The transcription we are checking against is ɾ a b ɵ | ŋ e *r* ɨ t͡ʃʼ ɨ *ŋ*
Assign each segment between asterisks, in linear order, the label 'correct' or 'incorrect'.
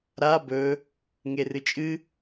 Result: correct, incorrect

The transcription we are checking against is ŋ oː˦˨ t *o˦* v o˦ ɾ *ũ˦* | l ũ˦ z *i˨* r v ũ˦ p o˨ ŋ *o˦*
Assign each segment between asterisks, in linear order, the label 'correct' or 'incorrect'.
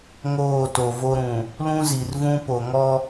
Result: incorrect, incorrect, correct, incorrect

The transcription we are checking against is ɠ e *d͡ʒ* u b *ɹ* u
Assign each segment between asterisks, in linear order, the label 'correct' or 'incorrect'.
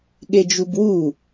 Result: correct, incorrect

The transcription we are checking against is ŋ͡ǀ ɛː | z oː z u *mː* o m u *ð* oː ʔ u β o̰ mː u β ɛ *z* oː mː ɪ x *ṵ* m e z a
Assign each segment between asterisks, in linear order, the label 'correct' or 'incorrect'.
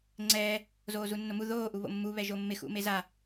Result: incorrect, correct, incorrect, correct

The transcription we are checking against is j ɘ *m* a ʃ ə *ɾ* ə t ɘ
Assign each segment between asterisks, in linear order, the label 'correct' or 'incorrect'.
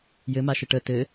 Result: correct, incorrect

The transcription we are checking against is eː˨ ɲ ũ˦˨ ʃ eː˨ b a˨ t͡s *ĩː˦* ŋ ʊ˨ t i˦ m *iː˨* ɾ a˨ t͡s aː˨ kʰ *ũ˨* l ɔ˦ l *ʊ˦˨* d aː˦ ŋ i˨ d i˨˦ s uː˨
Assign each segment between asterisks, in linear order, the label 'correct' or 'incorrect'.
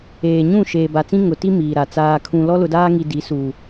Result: incorrect, correct, correct, incorrect

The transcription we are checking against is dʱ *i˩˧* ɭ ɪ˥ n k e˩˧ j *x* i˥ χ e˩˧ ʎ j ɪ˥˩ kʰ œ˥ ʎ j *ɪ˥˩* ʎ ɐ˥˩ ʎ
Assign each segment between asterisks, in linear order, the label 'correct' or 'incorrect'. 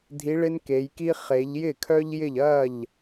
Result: incorrect, incorrect, correct

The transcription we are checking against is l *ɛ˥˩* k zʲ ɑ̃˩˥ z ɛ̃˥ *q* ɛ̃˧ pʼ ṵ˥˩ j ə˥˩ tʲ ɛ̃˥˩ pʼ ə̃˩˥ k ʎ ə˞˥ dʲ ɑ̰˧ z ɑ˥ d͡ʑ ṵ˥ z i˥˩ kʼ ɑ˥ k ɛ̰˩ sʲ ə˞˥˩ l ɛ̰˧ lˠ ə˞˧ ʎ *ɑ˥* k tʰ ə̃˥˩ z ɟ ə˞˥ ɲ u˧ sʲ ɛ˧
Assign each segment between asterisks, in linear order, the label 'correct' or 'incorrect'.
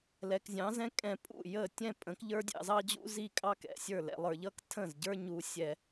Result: incorrect, incorrect, incorrect

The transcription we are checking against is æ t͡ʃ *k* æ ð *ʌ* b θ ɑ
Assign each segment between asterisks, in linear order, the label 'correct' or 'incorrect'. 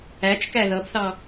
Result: correct, correct

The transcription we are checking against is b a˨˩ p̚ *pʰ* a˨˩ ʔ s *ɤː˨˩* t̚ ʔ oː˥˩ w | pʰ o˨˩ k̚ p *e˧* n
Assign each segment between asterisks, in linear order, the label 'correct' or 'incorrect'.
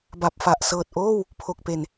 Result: incorrect, correct, incorrect

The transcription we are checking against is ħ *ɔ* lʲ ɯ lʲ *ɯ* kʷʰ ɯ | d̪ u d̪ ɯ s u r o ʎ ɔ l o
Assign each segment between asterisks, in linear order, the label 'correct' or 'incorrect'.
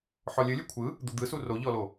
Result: correct, correct

